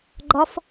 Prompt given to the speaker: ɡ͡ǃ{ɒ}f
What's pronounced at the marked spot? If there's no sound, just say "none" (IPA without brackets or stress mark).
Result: ɒ